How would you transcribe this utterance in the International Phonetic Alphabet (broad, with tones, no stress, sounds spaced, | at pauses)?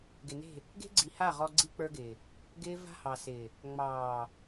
ɡ ɪ˨ n e̤˦˨ | ɡ e̤˦ ɡ͡ǀ i˨ h a˦˨ ʁ ɔ˦ ɡ͡ǀ i˦ k͡p ə˞˦ ɡ ɪː˨ | ɡ ɪː˦ v a̤˦ h ɑ˨ s ɪː˨ | ŋ͡m ɑː˨